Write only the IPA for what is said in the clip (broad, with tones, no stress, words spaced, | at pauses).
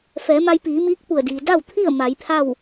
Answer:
fɛː˩˧ma˧jpiː˩˧miː˧˥k̚ pu˧˩ə̯diː˩ da˥˨wt̪ʰi˥˨ə̯ ma˩˧jpʰa˥˨w